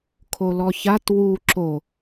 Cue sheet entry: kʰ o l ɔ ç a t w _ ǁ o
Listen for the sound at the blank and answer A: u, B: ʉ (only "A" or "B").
A